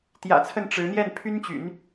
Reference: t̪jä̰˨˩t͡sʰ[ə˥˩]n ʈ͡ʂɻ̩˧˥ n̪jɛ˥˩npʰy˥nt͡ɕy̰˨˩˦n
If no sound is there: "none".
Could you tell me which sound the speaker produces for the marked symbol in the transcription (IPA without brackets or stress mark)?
ə˥˩